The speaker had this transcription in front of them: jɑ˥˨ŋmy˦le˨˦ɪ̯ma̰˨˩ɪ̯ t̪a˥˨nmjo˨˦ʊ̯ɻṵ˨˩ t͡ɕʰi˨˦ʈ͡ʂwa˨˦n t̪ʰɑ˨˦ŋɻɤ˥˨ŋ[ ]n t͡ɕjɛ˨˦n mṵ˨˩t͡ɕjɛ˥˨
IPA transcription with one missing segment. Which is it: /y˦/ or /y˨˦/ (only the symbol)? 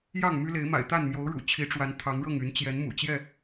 y˨˦